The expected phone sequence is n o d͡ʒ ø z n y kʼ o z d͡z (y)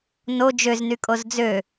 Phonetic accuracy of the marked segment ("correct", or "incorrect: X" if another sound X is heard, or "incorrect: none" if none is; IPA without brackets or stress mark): incorrect: ø